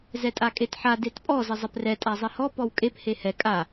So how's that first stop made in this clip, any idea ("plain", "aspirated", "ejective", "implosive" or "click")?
ejective